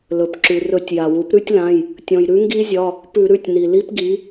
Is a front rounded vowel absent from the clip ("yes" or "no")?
yes